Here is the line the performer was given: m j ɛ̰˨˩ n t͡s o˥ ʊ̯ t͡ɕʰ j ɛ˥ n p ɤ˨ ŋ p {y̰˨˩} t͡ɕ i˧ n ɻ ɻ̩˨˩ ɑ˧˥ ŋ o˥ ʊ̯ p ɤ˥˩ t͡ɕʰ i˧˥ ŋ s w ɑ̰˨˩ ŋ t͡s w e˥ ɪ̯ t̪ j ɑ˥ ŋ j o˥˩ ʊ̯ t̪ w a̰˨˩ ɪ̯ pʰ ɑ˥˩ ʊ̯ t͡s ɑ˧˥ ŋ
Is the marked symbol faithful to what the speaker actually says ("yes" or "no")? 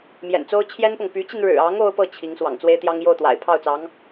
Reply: no